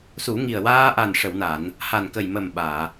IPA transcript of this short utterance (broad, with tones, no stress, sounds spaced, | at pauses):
s u˨˩˦ ŋ i˨˩ ə̯ w aː˧ ʔ a˨˩ n ʂ ə˨˩˨ w n a˨˩˨ n | h a˨˩ n k ə˨˩ j m ə˨˩ m ɓ aː˨˩˨